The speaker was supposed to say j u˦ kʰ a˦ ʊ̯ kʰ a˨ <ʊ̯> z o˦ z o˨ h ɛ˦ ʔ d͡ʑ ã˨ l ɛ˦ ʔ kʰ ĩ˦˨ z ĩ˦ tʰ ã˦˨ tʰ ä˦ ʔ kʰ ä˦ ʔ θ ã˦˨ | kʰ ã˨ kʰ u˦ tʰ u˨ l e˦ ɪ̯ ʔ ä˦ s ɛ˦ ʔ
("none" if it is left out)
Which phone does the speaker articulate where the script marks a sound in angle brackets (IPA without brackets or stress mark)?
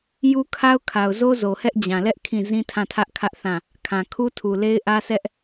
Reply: ʊ̯